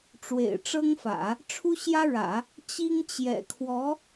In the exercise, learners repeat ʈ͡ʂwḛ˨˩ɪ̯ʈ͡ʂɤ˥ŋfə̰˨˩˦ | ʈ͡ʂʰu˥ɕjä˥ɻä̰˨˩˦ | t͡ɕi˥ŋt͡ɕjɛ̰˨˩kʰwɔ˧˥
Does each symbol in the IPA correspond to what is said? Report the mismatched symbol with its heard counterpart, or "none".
ə̰˨˩˦ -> ä̰˨˩˦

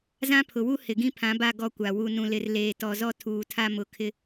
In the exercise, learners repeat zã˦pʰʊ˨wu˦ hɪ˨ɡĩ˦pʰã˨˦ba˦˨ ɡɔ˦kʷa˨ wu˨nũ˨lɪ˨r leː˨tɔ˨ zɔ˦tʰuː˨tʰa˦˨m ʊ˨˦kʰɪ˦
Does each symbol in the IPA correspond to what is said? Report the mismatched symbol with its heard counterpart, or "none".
none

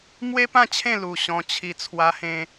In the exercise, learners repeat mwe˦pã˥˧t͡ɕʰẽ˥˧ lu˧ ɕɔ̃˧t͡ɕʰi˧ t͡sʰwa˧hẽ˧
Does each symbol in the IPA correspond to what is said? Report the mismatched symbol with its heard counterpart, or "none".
none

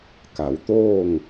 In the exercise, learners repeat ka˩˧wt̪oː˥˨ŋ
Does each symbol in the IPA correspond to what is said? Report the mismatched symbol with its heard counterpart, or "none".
none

